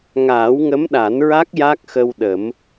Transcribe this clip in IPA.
ŋ aː˨˩˦ w ŋ ə˧˥ m ɗ a˨˩˦ n ɹ a˦˥ k̚ j a˦˥ k̚ x ə˧ w ɗ ə˨˩˦ m

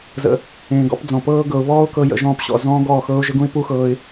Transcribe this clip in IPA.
z ə̰˨ | ẽː˨ ɡ ɔ̰˦ p d͡z ɔ̃˨ p ɤː˦ ɡ ɤ˨ ʊ̯ β ɔː˦ ʊ̯ k ɤ˦ j ə̰˧ ʒ ɔ̃ː˧ p ɕ ɔ̰˨ z ɔ̃ː˦ ɡ ɔː˦˨ x ɤː˦ ʊ̯ ʒ ə˦ ɡ ũ˦ ɪ̯ p u˦ x ɤː˧ ɪ̯

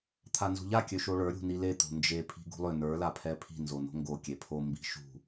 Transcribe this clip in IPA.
t̪ʰ a n z ṳ ʎ a kʲ ø ʃ o ɭ ə˞ ɾʲ ṳ n i l e t̪ o̤ n d͡ʒ e pʰ i̤ ɡ ṳ lˠ ʏ n ə˞ l a pʰ ɛ pʰ i̤ n z o n o̤ ŋ ɡ o kʲ e pʰ o m b i̤ ʃ ṳ

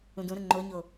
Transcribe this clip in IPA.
ũ d ũ ɾ ə ŋ͡ǃ o ɲ o

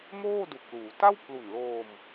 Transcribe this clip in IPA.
m oː˥˩ d u˨˩ k̚ l uː˩˦ t a˥˩ w pʰ l u˨˩ n l oː˧ m

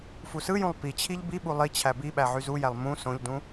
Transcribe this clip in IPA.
f u s ɯ j ũ lˠ p i t͡ɕʰ i ʎ b i ɓ u lˠ i t͡ɕʰ æ b i ɓ æ ʕ y z u j æ lˠ m ũ s õ ʎ d ũ

